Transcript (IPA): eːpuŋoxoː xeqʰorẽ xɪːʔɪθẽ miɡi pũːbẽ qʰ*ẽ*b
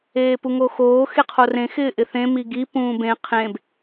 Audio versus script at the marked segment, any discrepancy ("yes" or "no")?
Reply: no